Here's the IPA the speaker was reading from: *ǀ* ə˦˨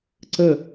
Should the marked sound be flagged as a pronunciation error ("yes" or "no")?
no